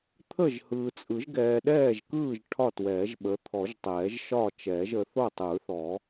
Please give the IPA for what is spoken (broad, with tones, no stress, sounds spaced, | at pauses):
t̪ʰ ə˥˨ ʒ h ɯː˨ t͡sʼ ɯ˨˩˦ ʒ ɡ ɛː˨ ɗ ɛː˥˨ ʒ k ɯː˥˨ ʒ ʈʰ ɒ˥˨ t w ɛː˨˩˦ ʒ ɓ ə˨˦ t̪ʰ ɔ˨˩˦ ʒ tˤ ɛː˨˩˦ ʒ ʃ ɒː˥˨ t͡ʃ ɛː˨˩˦ ʒ ə˨˦ θ o˥˨ tˤ ɯː˨˩˦ θ ɔ˨˩˦